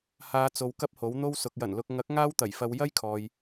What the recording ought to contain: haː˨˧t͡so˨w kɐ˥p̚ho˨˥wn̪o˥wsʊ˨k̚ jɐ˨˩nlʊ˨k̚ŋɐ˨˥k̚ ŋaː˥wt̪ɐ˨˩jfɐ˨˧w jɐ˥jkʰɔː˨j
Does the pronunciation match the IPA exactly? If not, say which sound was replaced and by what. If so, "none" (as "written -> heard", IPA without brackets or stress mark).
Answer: none